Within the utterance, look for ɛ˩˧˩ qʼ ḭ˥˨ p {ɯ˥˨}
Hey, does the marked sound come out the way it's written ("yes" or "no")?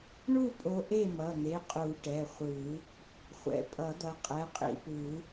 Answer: no